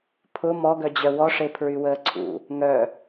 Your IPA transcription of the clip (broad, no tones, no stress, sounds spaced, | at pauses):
pʰ ʊ m ɔ ɡ œ d͡ʑ œ w ɔ ʂ e pʰ ɹ y w əː ǀʰ ṵ | ŋ œ